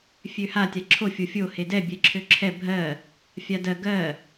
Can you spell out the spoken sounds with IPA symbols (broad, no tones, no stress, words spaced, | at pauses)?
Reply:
fʲøha tʲaǁʰo fʲofʲo hedɛ bʲɛǁʰøǁʰɛ bʱɜ | fʲadɜ ɡɜ